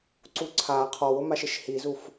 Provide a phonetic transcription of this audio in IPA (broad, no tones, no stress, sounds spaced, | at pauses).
ǀ u ǀʰ a qʰ ɔ w ʊ m a ʃ ɪ ʃ h i z u f